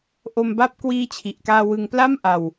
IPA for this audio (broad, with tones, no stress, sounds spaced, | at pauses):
ʔ o˧ m b a˦˥ p̚ k w iː˦˥ t͡ɕʰ i˨˩ ʔ k aː˧ w ɯ˧ ŋ p l a˥˩ m ʔ a˧ w